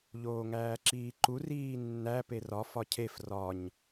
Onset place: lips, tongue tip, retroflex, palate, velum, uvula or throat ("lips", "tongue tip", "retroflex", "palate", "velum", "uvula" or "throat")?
palate